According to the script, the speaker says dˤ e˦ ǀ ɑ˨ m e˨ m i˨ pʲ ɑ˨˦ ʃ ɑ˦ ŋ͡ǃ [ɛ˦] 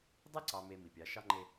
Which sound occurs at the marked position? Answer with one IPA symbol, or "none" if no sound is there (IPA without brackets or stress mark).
e˦